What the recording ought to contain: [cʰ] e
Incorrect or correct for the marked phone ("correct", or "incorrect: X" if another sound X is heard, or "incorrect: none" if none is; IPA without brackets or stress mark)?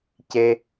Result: incorrect: c